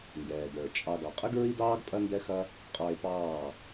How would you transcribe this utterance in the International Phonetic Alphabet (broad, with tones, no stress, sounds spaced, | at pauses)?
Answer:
n d ɛː˨ d ə˞˨ t͡ʃʼ ɑ˧ ɡ ɑ˨ qʼ ə˦ ɡ ɹ i˦ d ɑː˦ ɡ pʼ ɐ˦ n d ɛ˦ x ɐ˦ | qʼ ɑ˧ e̯ p ɑː˦˨